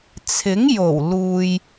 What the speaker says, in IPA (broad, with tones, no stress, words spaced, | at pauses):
t͡sʰɪ˨˥ŋ jo˨˩wluː˨j